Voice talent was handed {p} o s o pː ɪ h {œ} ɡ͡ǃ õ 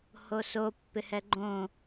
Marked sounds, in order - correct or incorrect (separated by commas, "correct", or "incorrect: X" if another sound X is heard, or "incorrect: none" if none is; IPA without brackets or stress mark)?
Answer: incorrect: h, incorrect: ɛ